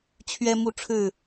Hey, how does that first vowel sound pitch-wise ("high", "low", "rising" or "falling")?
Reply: high